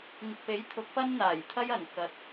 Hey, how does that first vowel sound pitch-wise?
low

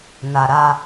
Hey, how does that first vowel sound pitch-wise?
low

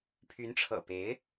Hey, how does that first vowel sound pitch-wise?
rising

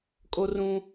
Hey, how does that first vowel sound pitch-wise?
high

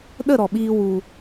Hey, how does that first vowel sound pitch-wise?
falling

